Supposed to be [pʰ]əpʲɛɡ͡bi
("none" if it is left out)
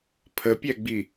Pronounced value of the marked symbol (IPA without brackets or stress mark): pʰ